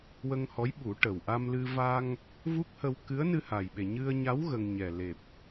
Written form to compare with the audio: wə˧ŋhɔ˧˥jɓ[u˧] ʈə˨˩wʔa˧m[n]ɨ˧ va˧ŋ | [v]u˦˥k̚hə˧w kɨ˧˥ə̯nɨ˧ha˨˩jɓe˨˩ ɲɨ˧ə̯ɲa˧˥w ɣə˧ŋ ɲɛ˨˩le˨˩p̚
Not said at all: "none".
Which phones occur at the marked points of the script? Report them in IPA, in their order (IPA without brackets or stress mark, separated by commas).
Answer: u˨˩˦, l, v